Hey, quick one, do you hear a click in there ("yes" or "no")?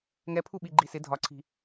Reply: yes